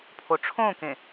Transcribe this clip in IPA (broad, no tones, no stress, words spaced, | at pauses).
pʰoʈ͡ʂʰõkẽ